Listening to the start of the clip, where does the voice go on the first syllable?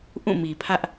falling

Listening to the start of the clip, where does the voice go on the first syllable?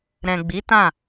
low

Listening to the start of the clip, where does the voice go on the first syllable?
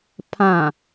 low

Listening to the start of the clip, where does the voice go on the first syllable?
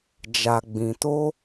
low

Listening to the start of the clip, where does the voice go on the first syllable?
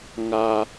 high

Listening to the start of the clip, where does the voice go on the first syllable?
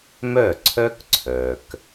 falling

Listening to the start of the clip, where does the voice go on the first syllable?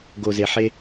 low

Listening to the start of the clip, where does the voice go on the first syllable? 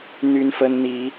high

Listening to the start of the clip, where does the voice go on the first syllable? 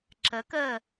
rising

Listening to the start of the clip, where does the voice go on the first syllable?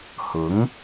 rising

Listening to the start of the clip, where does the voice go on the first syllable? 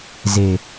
low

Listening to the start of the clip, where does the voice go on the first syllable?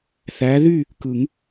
rising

